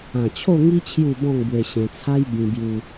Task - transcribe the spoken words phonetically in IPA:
ã˨˩ t͡ɕʰ o˥˧ ŋ i˦ t͡ɕʰ j u˥˧ b ɔ̃˥˧ ŋ b w e˧ ɕ ẽ˧ t͡sʰ a˦ j b ĩ˧ b j u˧

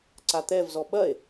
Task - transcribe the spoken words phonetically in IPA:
ǀ a t̪ ɛ v z ɔ ɓ ɐ e̯

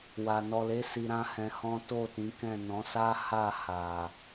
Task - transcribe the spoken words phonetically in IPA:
w a˨ n ɔ˨ l e˨˦ s i˧ ɾ ã˦ h ɛ̃˧ h ɔ̃˦ t o˦˨ t ĩ˨˦ k ɛ̃˦˨ n ɔ̃˨˦ s a˦ h a˦˨ h a˨

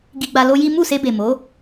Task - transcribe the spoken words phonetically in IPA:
ɡ i˧ ɡ͡b a˧ l o˦ j i˦ m u˦˨ s e˧ b e˨ m o˨˦

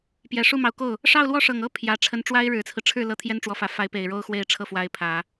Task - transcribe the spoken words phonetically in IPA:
p j ɛ˨˩ ʂ u˥˩ m ɑ˧˥ ʊ̯ k o˥˩ ʊ̯ | ʂ ɑ˥˧ ʊ̯ l w ɔ˥˩ ʂ ɤ˨˩ ŋ ɤ˥ pʰ j ä˧˥ ʈ͡ʂʰ ə˧˥ n ʈ͡ʂ w a˥ ɪ̯ ɻ ɻ̩˨˩ t͡sʰ ɹ̩˦ ʈ͡ʂʰ ɻ̩˥˩ l ɤ˥ t̪ʰ j ɛ˥ n ʈ͡ʂ w ɔ˧˥ f ä˨˩ f a˧˥ ɪ̯ p e˨˩ ɪ̯ ɻ o˥ ʊ̯ x w e˥˧ ɪ̯ ʈ͡ʂʰ ɤ˥˩ f w a˧˥ ɪ̯ pʰ ä˨˩˦

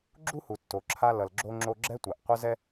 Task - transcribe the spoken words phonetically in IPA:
ɡ͡ǁ u˥ h u˩ tː o˩ ǁʰ a˧ l ʌ˩ l ɡ͡ǁ o˧ ŋ͡ǁ o˧ ɡ͡ǁ ɛ˥ tʷ a˩ ʔ qʷ ʌ˥ z ɛ˥

